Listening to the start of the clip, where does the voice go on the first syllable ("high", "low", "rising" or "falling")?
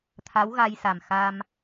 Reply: rising